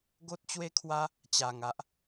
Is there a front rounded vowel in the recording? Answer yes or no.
no